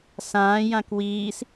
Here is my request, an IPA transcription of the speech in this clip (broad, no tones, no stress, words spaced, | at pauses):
sãː jãkwiːs